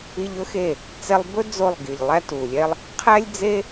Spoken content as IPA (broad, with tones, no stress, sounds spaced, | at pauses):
i˧ ʎ ɵ˦ x e˦˨ | t͡s ɛ˧ lˠ b ɵ˦ d͡z o˦˨ lˠ ɡ i˨ ʎ lˠ æ˦ t u˨ lʲ ɛ˦ lˠ | qʰ æ˦ lʲ d͡z e˦